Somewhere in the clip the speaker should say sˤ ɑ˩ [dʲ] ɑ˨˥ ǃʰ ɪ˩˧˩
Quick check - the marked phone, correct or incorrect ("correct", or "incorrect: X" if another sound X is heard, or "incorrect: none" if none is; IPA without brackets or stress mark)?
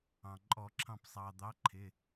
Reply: incorrect: d̪